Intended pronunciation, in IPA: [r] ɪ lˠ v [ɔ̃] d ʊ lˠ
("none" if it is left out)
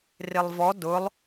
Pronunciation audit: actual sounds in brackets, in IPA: r, ɔ

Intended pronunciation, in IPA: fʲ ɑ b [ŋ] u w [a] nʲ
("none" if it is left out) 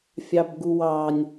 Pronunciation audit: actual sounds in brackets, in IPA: ɡ, ɑ

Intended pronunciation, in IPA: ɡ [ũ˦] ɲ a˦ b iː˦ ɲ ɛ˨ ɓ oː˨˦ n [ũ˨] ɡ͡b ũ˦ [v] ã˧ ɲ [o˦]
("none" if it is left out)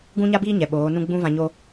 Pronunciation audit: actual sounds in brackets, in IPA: ũ˦, ũ˦, v, o˦

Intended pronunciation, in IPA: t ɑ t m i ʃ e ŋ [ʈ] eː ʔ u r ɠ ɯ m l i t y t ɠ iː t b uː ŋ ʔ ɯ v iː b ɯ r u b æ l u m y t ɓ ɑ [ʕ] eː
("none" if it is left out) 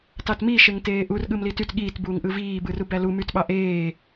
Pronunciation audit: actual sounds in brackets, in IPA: t, ʔ

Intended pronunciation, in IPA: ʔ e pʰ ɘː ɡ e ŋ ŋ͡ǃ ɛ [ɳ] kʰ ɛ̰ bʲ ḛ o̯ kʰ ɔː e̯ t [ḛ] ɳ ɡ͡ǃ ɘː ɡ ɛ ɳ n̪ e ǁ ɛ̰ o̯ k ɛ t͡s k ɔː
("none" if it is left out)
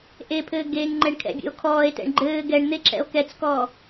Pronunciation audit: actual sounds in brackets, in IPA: ɳ, ɛ̰

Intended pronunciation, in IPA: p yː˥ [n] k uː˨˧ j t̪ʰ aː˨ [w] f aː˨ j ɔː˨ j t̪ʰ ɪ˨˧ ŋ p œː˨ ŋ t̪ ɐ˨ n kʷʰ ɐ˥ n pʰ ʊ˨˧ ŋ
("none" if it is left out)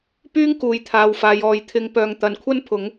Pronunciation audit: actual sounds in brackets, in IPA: ŋ, w

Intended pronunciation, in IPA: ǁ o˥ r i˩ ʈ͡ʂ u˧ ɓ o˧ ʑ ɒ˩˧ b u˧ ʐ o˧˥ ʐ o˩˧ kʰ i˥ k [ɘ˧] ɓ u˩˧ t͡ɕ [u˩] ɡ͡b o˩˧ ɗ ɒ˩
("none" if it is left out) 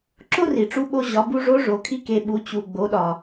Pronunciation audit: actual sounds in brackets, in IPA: e˧, u˩

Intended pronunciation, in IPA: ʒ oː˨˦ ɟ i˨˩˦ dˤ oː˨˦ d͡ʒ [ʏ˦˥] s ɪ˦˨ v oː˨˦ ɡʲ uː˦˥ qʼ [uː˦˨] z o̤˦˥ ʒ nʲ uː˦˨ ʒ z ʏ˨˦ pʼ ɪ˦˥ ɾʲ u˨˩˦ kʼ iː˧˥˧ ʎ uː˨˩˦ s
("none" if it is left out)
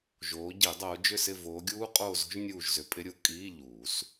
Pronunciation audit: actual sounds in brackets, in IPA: ʏ˦˨, oː˦˨

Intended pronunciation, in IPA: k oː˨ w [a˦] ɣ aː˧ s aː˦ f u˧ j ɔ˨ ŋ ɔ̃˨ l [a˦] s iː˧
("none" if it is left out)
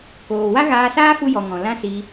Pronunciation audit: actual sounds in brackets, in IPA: a˦, ã˦

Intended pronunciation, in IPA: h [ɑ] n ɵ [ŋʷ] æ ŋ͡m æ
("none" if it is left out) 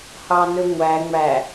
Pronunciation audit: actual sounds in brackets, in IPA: ɑ, ŋʷ

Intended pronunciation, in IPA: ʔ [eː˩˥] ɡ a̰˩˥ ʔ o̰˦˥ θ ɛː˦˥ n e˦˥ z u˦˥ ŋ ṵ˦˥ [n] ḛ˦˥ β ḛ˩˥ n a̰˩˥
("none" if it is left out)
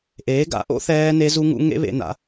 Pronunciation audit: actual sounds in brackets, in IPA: eː˩˥, ŋ

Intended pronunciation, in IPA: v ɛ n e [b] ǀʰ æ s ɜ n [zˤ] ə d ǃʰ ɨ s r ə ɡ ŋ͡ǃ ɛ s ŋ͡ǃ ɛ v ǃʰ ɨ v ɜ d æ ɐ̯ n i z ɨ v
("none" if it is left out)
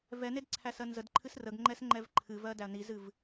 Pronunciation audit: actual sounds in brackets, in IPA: d, z

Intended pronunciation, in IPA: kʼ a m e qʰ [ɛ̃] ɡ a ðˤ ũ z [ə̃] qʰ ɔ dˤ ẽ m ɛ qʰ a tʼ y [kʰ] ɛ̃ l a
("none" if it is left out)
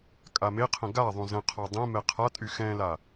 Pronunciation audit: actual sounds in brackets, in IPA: ə̃, ə̃, x

